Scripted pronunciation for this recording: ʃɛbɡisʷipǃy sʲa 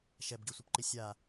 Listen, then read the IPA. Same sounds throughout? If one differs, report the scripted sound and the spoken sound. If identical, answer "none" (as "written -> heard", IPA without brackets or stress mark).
y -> i